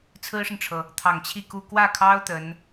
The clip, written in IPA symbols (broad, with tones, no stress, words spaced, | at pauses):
t͡sʰɹ̩˥ʂə˨nʈ͡ʂʰɤ˩ | t̪ʰɑ˨˩ŋ t͡ɕʰi˥˧ku˥˧ kwä˥˩kʰɑ˥ʊ̯ t̪ə˧˥n